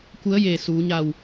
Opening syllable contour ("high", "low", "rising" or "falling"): rising